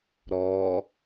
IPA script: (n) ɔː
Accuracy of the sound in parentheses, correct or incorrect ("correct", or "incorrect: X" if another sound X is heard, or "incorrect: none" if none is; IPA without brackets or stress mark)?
incorrect: ɾ